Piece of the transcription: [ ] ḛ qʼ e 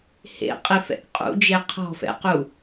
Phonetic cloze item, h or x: h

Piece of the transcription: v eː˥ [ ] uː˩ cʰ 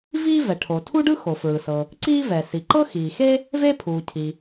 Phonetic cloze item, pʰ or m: pʰ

